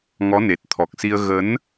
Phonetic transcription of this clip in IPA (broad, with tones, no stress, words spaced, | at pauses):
ŋɔ˨˦ne˨˩t̚t̪ʰɔ˨˩k̚si˧ə̯ ɣə˨˦n